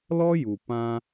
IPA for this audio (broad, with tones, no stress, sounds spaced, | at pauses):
l ɔ˦ j u˨ p ã˧